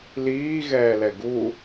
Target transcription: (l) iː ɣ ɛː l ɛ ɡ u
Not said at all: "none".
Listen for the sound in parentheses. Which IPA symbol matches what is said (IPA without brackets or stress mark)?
l